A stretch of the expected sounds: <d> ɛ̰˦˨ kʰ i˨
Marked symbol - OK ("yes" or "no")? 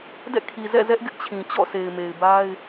yes